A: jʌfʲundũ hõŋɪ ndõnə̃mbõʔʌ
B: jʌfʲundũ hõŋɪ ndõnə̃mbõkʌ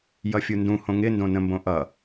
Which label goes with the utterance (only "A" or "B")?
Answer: A